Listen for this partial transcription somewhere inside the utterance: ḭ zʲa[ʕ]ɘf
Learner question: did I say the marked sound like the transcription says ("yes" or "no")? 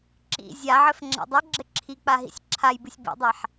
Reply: yes